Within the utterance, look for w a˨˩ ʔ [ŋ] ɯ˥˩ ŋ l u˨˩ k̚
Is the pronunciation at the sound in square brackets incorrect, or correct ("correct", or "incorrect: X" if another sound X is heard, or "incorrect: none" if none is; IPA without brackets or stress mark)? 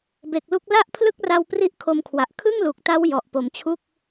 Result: incorrect: kʰ